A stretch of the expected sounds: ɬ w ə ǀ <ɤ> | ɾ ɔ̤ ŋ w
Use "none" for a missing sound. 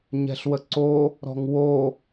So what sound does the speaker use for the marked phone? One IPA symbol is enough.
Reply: o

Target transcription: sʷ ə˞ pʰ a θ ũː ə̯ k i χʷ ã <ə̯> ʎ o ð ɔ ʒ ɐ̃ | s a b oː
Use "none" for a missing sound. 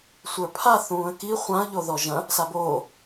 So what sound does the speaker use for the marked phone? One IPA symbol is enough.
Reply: ə̯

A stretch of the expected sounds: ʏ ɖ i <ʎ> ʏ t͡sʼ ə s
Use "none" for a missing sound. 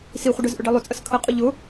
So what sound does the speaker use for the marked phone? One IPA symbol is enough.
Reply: lˠ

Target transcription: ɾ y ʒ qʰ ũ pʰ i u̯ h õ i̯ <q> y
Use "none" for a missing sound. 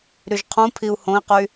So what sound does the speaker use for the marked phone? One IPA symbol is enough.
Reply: q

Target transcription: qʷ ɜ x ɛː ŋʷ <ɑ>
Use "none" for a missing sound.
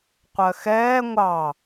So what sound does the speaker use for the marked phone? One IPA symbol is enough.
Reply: ɑ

